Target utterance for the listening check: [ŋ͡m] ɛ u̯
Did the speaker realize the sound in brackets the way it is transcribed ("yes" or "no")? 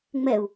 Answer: yes